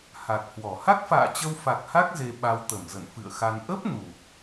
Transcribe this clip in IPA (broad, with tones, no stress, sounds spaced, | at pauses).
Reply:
h a˨˩ k̚ h w ɔ˧˩ h a˦˥ k̚ f a̰ː˧˨ t͡ɕ ə˧ w f a˨˩ k̚ h a˦˥ k̚ z e˧ ɓ a˧ w t̪ ə˧˩ m z ə̰˧˨ n f ɨ̰˧˨ ə̯ x a˧ n ʔ ə˦˥ p̚ n u˨˩ p̚